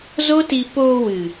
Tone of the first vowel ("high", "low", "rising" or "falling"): high